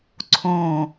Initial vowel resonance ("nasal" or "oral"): nasal